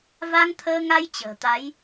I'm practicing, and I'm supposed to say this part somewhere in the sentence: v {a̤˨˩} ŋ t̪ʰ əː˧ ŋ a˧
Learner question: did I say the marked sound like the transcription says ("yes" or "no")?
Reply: no